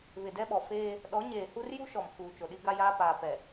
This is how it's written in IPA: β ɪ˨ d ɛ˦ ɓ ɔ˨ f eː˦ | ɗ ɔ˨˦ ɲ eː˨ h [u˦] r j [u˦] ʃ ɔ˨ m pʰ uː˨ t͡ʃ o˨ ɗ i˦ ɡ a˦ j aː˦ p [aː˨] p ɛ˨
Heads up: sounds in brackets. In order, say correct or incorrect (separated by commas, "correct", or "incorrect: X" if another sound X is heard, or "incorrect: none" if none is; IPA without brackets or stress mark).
correct, correct, correct